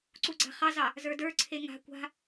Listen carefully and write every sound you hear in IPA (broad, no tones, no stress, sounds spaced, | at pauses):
ǀ u ɡ͡ǀ a̤ χ ɑ z ɑ | z ə˞ d ə˞ ǀʰ e ŋ a̤ kʷ a̤